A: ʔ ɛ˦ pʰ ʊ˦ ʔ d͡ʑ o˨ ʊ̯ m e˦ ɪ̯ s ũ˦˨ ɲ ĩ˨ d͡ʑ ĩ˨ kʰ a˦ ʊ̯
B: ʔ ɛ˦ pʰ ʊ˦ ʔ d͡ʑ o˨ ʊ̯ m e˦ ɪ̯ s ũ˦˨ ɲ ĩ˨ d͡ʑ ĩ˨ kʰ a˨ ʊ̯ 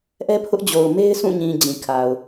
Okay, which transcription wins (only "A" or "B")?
B